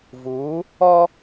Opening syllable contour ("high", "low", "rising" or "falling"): rising